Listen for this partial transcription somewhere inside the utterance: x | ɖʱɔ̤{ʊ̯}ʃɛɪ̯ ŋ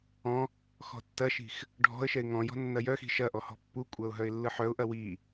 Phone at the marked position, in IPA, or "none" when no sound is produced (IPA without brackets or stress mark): ə̯